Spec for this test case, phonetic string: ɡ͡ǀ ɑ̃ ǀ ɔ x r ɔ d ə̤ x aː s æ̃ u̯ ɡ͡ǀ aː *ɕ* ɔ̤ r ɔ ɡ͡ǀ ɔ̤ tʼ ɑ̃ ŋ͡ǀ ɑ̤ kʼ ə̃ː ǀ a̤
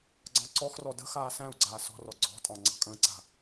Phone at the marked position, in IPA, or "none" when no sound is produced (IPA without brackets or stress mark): s